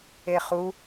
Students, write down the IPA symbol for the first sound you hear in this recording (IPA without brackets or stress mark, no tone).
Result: e